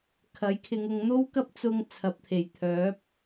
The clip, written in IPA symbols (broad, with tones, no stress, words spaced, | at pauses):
kʰɐ˨˥j kʰɪ˨˧ŋʊ˨˧ŋn̪o˥wkɐ˥p̚ t͡sʊ˧ŋ t͡sʰɐ˨p̚t̪ʰe˨˩j t̪ʰœː˨˥p̚